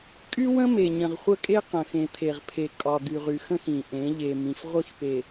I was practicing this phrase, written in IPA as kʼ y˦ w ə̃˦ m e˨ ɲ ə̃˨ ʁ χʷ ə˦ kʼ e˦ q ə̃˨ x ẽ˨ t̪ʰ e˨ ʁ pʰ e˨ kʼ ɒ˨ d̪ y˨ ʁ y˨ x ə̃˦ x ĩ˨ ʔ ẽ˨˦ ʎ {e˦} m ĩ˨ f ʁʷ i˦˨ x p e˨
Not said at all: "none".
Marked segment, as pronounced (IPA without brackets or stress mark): e˨